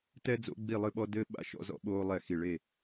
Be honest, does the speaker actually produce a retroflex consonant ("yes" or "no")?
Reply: yes